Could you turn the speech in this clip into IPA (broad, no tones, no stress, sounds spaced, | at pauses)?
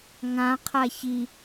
ŋ ã qʰ a ç i